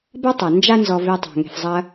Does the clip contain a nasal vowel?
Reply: no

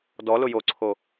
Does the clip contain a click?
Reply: yes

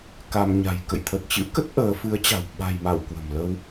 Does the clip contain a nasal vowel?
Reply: no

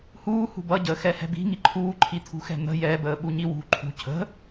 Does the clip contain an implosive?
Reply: yes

